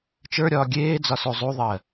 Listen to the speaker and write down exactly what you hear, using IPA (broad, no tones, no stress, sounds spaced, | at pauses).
t͡ʃ ə˞ ɾʲ ɒː ɡʲ eː d͡z ɒ s u zˤ u ðˤ ɜ